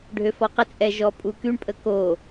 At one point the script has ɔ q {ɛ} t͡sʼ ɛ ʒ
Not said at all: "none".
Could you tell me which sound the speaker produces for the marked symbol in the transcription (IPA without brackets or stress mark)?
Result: ə